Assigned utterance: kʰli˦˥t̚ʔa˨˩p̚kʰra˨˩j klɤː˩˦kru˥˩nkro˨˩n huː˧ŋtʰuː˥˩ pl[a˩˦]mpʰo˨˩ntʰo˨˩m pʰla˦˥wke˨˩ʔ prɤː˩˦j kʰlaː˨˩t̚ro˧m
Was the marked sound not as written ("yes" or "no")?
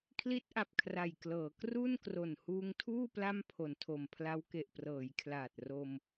yes